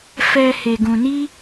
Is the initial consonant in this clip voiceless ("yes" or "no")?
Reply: yes